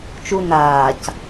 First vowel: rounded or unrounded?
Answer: rounded